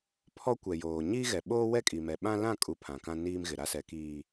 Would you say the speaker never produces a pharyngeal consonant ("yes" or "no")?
yes